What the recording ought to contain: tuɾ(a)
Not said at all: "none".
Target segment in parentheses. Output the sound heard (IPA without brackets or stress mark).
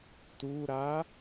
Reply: a